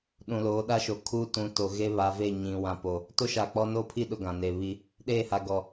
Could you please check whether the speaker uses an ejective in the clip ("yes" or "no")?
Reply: no